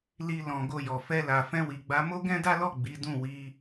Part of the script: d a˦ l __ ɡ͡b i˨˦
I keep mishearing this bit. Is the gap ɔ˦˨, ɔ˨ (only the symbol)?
ɔ˦˨